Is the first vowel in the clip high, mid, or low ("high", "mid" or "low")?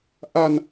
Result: low